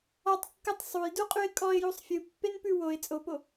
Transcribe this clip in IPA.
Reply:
ɔ tˤ kː ɯ tˤ sˤ u j d u qʼ ʉ ɪ̯ kʼ ɔ ɪ̯ j u sˤ fʲ ɯ pː e n p ʉ w o ɪ̯ t͡sʼ o p o

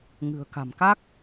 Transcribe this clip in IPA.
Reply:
ŋ ɨ̤˨˩ ə̯ k a̤˨˩ m k a˦˥ k̚

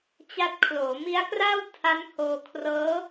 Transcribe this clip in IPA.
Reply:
t͡ɕ a˦˥ t̚ kʰ l oː˩˦ m i˦˥ a̯ k r aː˥˩ w tʰ a˦˥ n h oː˧ kʰ r ɤː˦˥

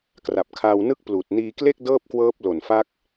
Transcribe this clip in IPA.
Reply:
k r a˨˩ p̚ kʰ aː˧ w n ɯ˥˩ k̚ p l uː˨˩ t̚ n iː˧ k l e˥˩ k̚ d ɤː˥˩ p̚ k w ɤː˦˥ p̚ l o˨˩ n f a˦˥ k̚

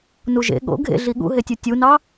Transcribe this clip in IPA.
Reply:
n u ʒ ḛ ɠ o̰ ɡʱ ḛ ɮ i ɠ ṵ ɦ e tʲ u tʲ u n ɑ

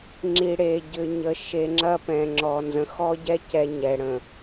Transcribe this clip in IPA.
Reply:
ŋ͡ǁ i˨ ɽ e˨ ɟ ʏ˨ ɲ ə˨ ʃ e˨ ŋ͡ǁ ɐ˦ p ɛ̃˨ ŋ͡ǁ ɔ˨ n z ə̃˨ x ɔ˦ ɟ ɛ˦ c ɛ˦ ɲ ɛ˨ ɽ ə̃˨

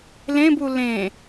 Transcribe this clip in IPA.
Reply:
l ẽ b u l ẽ

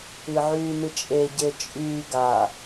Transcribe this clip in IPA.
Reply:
ɨ ʕ yː n ɨ t͡ʃʼ e ɟ e t͡ʃʼ yː ɡ a

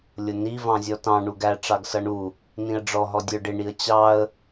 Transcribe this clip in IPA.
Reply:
lʲ ʊ n i v ɑ̃ zʲ ɔ t ɑ̃ ɳ u ɡ æ ʈ͡ʂ ɑ ɡ s ʌ ɳ u | n ĩ ə̯ ɖ͡ʐ ɔ ɦ ɔ dʲ ə˞ ɖ ɪ ɳ i ə̯ t͡ɕ ɑ ə̯

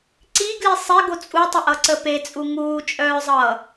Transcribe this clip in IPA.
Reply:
ǀ i ɡ l i sˤ e ɡ o t͡sʼ u tˤ ɘ ʔ ʌ ǀ ə p e t͡sʼ u ŋ uː t͡ʃʼ œː zˤ ʌː

